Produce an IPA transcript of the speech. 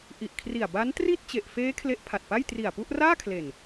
ʔ i˨˩ ʔ kʰ r i˨˩ a̯ b a˦˥ n t r i˥˩ t̚ t͡ɕ e˨˩ ʔ f eː˦˥ kʰ l e˦˥ ʔ pʰ a˨˩ t̚ p a˥˩ j t r i˨˩ a̯ p u˥˩ ʔ r aː˥˩ kʰ l e˨˩ n

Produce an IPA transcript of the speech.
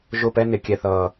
ʒ ʊ˦˨ p ɛ˦ n ɪ˨˦ kʲ ɛ˦ θ ʌː˦

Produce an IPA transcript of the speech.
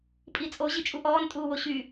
pʼ i t͡sʼ o ʑ i t͡ʃʼ u ʔ ɔː n tʼ uː w o ɕ y

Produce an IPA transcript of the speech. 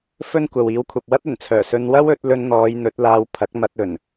f ɵ˥ n kʷ ɐ˨ w iː˨˥ w kʷʰ ɐ˨ p̚ w ɐ˥ t̚ ɵ˨˩ n t͡sʰ œː˨˩ s ɵ˧ n w ɐ˥ w ɵ˨˥ t̚ l ɵ˧ n n̪ ɔː˨˧ j n̪ ɵ˨˥ t̚ l aː˧ w pʰ ɐ˨˥ k̚ m ɐ˧ t̚ ɵ˨˩ n

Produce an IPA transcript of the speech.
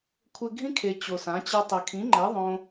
kʷʰ ɘ˧ ɡʱ ĩ˦ kʰ e˨ t͡ɕ o˨ s ã˨˦ t͡ɕ ɐ˦ tˤ ɘ˨ kʰ ĩ˨˦ ŋ͡ǃ ɛ˨˦ ðˤ õ˦

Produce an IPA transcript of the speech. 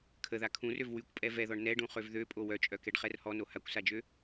kʰ ə ð a kʰ ũ r ø v w y kʷ pʼ ɛ v ɛ ð ɔ ɳ n ɛ ɖ ũ χ ø v ð ø pʼ o w œ t͡ʃʼ œ k ɛ ɖ χ ɛ r h ɔ n o h a kʷ s a d͡ʒ ø

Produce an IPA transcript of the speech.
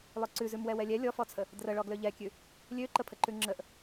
lˠ ø ǀ ʉ z ʉ m w ɛ w ɛ lʲ ɛ lʲ ɔ f ɔ t͡sʰ ə | d r ə ɭ ɔ ɡ l ø ʎ ɛ kʲ ʉ | lʲ ø ǃ ə pʰ ə ǃ ʉ ŋ͡ǁ ə ʔ

